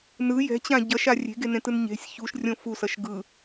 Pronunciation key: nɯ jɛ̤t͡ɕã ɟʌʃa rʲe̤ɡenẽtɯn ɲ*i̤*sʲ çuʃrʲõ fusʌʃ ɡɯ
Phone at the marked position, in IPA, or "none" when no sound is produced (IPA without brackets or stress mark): e̤